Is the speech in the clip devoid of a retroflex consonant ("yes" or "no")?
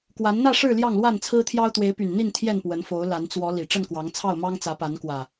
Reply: no